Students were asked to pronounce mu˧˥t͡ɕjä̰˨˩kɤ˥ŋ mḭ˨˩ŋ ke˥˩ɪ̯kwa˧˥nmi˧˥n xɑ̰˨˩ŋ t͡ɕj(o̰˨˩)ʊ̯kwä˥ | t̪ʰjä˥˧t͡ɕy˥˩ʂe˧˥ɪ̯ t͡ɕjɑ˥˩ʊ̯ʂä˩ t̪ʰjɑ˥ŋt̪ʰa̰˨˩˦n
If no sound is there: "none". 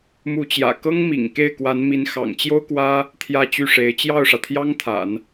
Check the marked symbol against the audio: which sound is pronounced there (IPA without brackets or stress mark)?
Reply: o˥